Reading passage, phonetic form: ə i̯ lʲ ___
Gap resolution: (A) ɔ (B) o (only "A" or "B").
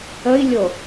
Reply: B